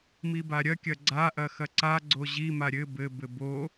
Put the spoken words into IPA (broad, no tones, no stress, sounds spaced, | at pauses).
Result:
m i b a ɾʲ ɐ kʲ ɐ ɡ͡ǀ a ʔ ɐ x ɐ ǀ a ɡ͡ǀ o ʑ i m a ɾʲ ɘ b ɘ b ɘ b o